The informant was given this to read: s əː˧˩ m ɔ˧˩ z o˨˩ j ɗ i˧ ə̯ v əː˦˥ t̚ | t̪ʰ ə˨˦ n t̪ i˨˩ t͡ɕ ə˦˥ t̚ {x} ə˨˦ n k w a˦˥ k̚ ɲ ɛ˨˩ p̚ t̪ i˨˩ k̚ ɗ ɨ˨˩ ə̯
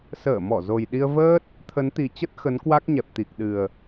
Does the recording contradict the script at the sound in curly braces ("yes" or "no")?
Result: no